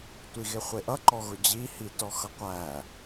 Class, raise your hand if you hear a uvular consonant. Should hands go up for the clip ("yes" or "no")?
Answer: yes